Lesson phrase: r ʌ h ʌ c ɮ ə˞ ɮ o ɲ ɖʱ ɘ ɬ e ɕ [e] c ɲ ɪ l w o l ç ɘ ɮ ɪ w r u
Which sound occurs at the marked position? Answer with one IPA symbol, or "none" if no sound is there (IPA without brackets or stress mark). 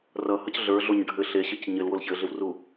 ɘ